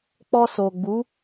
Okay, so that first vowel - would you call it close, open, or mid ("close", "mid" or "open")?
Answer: mid